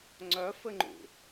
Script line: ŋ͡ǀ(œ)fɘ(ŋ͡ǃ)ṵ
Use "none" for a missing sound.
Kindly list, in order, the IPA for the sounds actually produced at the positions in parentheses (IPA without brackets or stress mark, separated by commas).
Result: œ, ŋ͡ǃ